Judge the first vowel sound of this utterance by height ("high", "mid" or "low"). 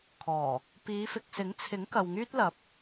mid